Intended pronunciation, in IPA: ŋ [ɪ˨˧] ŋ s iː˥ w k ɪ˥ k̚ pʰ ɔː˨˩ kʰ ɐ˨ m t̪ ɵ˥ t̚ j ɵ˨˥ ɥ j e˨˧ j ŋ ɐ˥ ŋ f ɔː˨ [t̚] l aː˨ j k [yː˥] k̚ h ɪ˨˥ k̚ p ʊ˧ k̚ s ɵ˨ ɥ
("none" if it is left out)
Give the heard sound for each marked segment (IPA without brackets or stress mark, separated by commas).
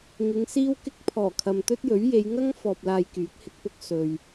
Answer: ɪ˨˧, p̚, yː˨˥